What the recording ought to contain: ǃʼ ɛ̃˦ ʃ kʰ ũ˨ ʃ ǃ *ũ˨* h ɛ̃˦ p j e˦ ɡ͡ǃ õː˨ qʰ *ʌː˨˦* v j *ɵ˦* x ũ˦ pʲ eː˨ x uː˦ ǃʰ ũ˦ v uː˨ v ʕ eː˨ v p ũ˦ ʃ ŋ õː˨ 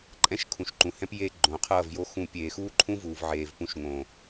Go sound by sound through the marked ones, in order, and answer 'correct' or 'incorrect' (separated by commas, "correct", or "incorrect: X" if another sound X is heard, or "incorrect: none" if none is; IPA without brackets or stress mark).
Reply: correct, incorrect: ʌː˦˨, incorrect: o˦